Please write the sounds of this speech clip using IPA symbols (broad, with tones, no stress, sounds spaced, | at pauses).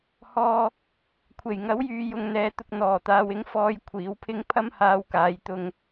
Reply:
h ɔː˧ | kʷʰ e˨˩ j ŋ ɐ˨˥ w j yː˨ j ʊ˨ ŋ n̪ ɛː˨ t̪ ʊ˨ k̚ n̪ ɔː˨˩ t̪ aː˨ w ɪ˨˥ ŋ f ɔː˧ j kʷʰ iː˨˥ w pʰ ɪ˥ ŋ pʰ ɐ˥ m h aː˧ w k aː˨˧ j t̪ ʊ˧ ŋ